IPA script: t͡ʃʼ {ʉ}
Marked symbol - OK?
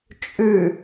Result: yes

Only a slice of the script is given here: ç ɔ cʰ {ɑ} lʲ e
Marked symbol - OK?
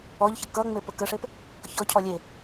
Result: no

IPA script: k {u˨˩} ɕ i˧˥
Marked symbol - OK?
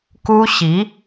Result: no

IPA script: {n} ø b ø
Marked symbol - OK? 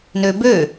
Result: yes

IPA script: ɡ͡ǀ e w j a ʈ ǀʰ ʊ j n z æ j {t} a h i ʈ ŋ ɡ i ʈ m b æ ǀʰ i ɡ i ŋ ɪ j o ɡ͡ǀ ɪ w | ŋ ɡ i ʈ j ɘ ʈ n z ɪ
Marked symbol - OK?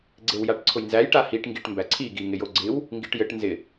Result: no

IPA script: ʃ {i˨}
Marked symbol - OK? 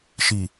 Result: yes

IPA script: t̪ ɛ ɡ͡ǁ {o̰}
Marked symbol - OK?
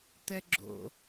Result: yes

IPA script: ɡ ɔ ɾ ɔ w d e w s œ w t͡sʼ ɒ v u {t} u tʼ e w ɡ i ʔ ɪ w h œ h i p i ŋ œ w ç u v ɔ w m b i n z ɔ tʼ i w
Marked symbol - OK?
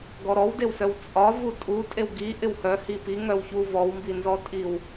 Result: no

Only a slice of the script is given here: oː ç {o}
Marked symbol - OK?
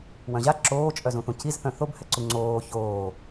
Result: no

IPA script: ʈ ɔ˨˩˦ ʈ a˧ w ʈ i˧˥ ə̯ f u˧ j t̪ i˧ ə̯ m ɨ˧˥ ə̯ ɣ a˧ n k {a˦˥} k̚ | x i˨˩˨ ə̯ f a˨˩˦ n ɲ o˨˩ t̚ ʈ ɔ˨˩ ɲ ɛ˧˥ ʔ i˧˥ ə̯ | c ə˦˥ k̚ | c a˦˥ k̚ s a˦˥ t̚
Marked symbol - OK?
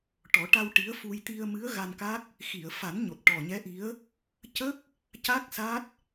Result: yes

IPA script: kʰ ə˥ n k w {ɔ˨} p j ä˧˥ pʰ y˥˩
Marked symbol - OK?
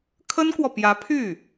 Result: yes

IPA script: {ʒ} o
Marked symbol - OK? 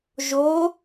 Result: yes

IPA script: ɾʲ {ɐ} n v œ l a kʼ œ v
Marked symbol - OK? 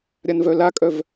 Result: no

